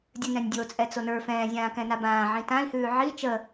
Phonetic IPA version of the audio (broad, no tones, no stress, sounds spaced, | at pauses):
dʲ ɨ n ɛ̃ nʲ dʲ o t͡sʼ ɛ t͡s o n ə˞ f ɛ̃ː zʲ ãː k ɛ̃ n a b ãː ʕ ĩ t ã i̯ h ʉː ʕ i t͡ʃ ə